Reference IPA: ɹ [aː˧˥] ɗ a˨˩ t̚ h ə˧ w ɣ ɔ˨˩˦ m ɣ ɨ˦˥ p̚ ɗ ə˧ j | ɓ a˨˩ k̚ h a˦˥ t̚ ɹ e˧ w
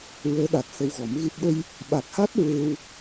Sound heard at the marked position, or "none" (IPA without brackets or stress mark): əː˧˥